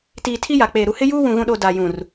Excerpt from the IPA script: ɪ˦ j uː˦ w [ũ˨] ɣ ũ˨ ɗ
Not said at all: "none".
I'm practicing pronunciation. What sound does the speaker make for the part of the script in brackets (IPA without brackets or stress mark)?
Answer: ũ˨